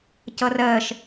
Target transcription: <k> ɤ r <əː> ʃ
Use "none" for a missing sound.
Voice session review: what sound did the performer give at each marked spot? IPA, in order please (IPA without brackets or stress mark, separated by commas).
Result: c, əː